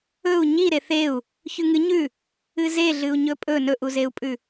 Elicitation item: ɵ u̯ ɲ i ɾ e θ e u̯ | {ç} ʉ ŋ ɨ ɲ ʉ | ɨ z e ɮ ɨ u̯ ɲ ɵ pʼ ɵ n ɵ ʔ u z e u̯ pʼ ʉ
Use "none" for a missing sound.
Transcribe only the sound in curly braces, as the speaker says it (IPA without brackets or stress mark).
ç